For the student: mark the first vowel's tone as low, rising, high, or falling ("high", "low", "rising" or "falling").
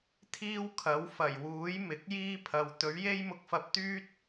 high